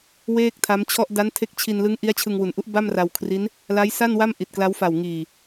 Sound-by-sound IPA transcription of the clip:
w eː˥˩ k̚ tʰ a˦˥ m t͡ɕʰ ɔ˥˩ ʔ d a˦˥ n tʰ e˦˥ k̚ t͡ɕʰ i˧ n l ɯ˦˥ ŋ ʔ i˦˥ a̯ t͡ɕʰ ɯ˧ ŋ w u˩˦ n ʔ u˦˥ ʔ b a˥˩ m r a˧ w kʰ r i˦˥ n | l a˦˥ j s a˥˩ n w a˥˩ m ʔ i˨˩ t̚ k l a˦˥ w f a˨˩ w ŋ iː˨˩

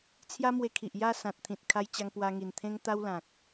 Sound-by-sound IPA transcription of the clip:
t͡sʰ j a˦ m w e˧ kʰ i˨ ʔ j a˥˧ s ã˨ t̚ t̪ʰ ĩ˨ t̚ kʰ a˧ j t͡ɕ a˧ ŋ p w a˧ ŋ i˨˩ n t̪ʰ ẽ˦ ŋ t̪ a˦ w l ã˨ k̚

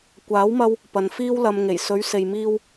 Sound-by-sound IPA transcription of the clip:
kʷ aː˨˥ w m ɐ˧ w | p ɐ˨ n f iː˧ w l ɐ˨ m ŋ e˨˩ j s ɵ˨˧ ɥ s e˨ j m iː˧ w

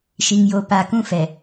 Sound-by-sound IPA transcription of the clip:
ʃ i˨ ŋ j o˨ p a˨ k ũ˦ f ɛ˨

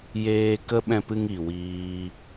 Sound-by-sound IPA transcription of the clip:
j eː˧ k ə˦ ɓ ɛ̃˧ p ɨ˧ ŋ i˨ w iː˦

